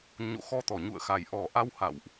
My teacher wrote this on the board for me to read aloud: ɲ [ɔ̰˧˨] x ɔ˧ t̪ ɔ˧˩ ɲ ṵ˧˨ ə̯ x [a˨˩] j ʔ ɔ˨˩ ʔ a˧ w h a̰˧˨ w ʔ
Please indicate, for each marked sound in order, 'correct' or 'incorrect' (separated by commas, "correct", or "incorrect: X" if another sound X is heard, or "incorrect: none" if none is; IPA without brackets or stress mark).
incorrect: o̰˧˨, correct